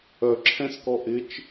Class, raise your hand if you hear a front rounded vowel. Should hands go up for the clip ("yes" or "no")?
yes